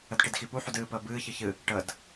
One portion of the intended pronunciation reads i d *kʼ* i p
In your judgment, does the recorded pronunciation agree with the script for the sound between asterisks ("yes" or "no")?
no